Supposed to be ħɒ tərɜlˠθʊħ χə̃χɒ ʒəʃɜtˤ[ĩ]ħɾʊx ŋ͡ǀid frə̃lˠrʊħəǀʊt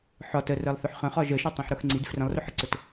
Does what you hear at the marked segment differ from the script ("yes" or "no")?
no